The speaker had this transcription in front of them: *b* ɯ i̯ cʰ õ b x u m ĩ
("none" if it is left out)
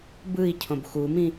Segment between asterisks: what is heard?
b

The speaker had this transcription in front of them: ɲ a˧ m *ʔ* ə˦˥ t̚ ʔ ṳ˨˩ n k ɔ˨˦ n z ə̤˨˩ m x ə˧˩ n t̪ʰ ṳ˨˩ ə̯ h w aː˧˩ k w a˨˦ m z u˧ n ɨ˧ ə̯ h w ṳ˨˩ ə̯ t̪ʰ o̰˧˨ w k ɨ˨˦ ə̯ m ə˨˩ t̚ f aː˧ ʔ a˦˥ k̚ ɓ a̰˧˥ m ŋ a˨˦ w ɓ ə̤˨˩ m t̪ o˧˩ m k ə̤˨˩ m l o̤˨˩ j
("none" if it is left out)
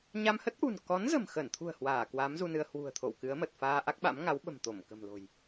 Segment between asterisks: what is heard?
h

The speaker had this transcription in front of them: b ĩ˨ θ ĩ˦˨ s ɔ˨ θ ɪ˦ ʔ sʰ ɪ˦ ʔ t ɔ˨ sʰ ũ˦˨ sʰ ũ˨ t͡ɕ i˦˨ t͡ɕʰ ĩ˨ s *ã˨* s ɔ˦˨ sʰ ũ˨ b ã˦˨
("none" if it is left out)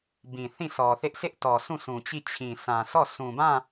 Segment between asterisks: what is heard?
ã˨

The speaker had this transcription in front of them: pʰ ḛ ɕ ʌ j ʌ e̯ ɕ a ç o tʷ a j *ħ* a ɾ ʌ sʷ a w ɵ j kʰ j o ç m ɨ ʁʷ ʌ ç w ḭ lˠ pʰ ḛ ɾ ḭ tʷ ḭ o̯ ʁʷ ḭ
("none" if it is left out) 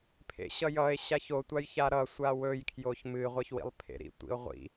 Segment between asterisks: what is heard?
ç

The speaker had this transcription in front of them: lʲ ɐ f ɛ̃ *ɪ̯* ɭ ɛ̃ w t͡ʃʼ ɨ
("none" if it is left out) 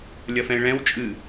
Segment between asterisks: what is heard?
ɪ̯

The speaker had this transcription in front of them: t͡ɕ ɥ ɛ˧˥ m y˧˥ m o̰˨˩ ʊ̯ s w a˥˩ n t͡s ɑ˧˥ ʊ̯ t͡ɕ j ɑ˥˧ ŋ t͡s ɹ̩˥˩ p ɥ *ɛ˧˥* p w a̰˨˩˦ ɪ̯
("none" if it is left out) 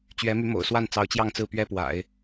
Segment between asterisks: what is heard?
ɛ˥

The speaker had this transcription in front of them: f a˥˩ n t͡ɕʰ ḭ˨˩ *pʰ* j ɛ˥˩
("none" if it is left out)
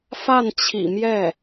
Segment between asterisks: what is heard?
m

